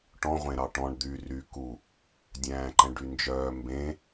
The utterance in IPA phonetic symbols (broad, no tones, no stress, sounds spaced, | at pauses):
ʈ ɔ̃ ʁʷ ẽ ɾ ɑ ʈ ɔ̃ ɳ d̪ y r y k u | dʲ æ̃ː ǃ ɛ̃ ɖ y n d͡ʒ œː m b ẽ